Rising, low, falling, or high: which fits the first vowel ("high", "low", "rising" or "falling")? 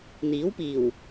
rising